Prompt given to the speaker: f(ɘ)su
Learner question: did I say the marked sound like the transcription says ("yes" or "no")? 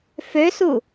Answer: no